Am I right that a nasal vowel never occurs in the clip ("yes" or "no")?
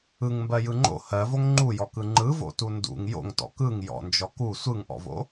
yes